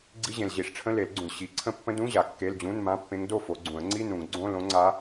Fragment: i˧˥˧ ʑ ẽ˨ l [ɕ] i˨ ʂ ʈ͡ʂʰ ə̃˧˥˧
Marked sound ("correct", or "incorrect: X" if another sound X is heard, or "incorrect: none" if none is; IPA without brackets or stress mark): incorrect: ʑ